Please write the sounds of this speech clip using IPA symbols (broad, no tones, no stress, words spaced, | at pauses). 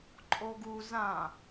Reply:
ǃʼoɡu zã